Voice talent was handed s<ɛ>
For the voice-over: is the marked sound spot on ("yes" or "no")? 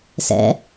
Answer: no